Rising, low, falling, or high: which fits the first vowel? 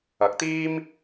rising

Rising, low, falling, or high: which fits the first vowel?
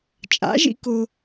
rising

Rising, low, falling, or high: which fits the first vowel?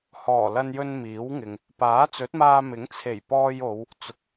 low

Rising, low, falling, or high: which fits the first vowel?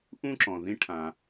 high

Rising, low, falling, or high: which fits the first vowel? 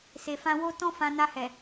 low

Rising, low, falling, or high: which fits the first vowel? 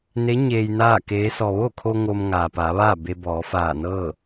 rising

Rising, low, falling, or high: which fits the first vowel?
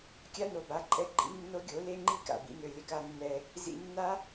high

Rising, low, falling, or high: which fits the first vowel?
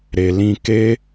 low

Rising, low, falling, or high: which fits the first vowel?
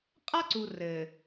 high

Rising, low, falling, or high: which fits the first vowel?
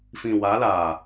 low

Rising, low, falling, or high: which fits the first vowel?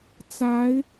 rising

